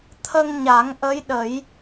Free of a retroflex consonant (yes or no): yes